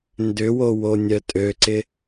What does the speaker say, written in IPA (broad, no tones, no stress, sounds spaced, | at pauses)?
n d ʏ w o w o nʲ œ tʼ ø ǀ ɪ